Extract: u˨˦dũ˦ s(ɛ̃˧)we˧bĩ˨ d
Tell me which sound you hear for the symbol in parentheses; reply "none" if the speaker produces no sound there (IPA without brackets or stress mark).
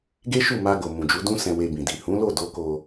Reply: ɛ̃˧